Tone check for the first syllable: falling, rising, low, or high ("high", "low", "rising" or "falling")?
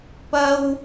high